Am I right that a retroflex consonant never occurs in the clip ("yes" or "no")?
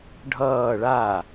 no